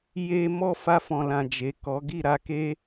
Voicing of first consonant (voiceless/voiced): voiced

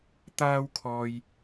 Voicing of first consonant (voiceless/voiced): voiceless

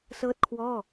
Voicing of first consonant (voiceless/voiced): voiceless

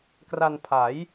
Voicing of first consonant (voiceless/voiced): voiceless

